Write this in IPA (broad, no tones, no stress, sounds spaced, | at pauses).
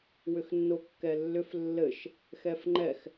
w ʏ x nː o kː ɛ lː ʏ f lː ɘ ʃ | x ɛ f ŋ͡ǃ ɛ x